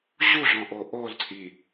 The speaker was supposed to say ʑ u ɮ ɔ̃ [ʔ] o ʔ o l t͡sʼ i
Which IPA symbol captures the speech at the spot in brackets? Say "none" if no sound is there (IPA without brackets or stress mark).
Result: ʔ